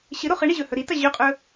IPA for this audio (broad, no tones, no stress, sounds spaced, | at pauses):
ɕ ɨ ɾ o χ ɨ ɳ i ʑ ɵ h ɵ ɾ i t ɐ ʑ ɵ qʼ ɵ